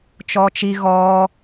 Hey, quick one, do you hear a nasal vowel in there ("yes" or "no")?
no